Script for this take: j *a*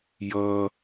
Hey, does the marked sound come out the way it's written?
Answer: no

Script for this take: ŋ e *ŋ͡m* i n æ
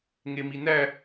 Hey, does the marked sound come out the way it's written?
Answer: no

